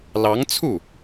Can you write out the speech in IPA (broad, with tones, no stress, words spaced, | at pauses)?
lɑ˧˥ŋt͡sʰu˥˩